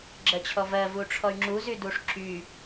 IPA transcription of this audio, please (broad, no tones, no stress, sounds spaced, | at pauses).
ɡ͡ǁ ɜ t͡ɕʰ ɔ v ɜ v u ʈ͡ʂʰ ɔ y̯ ŋ͡ǁ u z y d u ʂ ǁ y